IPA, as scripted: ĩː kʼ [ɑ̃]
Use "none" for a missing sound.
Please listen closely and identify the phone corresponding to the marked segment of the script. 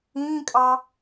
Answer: ɑ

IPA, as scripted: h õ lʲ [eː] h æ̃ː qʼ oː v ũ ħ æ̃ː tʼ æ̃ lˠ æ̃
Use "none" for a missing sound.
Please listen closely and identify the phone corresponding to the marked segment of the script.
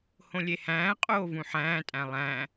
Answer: e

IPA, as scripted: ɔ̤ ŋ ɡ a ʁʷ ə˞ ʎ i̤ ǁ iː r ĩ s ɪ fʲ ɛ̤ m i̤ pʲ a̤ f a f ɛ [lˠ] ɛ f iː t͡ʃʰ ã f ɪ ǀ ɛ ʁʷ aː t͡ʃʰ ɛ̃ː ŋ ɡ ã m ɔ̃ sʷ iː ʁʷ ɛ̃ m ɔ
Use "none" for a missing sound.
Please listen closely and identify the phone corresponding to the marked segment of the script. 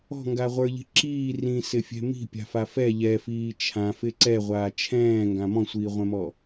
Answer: ʎ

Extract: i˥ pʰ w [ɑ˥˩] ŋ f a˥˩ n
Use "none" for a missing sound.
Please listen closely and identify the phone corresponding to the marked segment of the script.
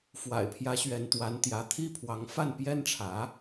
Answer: ɑ˧˥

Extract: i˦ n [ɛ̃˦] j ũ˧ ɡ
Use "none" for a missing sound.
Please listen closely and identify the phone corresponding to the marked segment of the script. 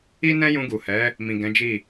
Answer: ɛ̃˦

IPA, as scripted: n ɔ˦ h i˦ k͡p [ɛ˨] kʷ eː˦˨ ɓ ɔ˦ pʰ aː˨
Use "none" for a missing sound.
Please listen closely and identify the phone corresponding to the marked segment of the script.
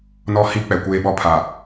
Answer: ɛ˨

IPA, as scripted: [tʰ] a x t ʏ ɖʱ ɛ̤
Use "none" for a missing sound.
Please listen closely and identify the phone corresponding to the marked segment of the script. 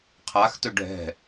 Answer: qʰ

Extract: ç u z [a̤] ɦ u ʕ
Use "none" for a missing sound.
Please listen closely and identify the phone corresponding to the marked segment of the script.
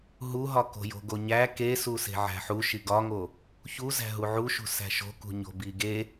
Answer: æ̤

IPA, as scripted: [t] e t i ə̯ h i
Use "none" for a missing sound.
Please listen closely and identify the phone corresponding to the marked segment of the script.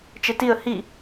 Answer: t͡ʃ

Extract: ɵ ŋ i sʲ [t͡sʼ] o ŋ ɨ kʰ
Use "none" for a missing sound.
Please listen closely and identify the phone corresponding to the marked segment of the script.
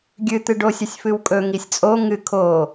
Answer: t͡sʼ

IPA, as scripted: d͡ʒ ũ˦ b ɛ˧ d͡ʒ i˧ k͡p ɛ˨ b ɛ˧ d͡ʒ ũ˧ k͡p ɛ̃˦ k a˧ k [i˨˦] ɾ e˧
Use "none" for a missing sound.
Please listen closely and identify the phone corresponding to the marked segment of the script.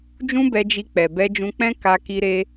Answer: i˧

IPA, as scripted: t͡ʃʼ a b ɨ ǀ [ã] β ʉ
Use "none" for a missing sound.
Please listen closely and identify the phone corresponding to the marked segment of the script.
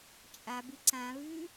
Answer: ã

